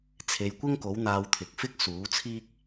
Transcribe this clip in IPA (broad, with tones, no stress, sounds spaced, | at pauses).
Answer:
t͡sʰ e˨˧ j kʷ ɪ˥ ŋ k o˨˥ w n̪ aː˧ w t̪ʰ ɪ˨˥ k̚ f ɪ˥ k̚ s uː˨˥ t͡sʰ iː˥ k̚